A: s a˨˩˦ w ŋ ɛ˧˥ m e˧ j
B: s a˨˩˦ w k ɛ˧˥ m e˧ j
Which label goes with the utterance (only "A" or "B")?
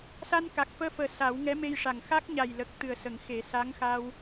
A